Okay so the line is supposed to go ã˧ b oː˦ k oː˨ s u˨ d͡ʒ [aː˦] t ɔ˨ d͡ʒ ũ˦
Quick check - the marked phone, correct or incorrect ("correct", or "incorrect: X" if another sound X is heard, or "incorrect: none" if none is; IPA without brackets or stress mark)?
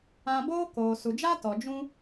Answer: correct